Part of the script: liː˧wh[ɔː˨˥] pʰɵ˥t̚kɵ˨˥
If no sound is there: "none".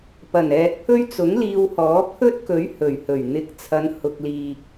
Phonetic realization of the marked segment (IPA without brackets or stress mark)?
ɔː˨˥